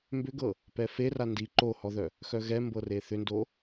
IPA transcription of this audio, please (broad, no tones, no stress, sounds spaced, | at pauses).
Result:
m b ʏ ɡ ɤ | p ɛ f e r a n d i ǃ o h ɔ ð œ | x œ ɣ ɛ m b ɤ r e θ ʏ n d o